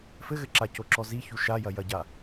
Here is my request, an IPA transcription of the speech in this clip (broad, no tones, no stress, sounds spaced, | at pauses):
f ɘ ɣ ɘ ǁ a c o ǁ ɔ z i ç u ʃ a j ɐ j ɐ ɟ a